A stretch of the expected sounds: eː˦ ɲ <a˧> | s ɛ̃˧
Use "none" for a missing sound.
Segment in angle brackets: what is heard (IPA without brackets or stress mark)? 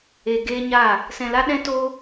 a˦˨